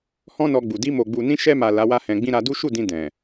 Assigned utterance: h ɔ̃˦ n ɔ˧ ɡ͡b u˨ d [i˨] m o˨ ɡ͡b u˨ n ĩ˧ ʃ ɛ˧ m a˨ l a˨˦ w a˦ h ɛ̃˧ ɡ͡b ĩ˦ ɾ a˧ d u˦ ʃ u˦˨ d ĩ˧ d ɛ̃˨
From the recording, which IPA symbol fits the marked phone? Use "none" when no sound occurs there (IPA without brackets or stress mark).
i˧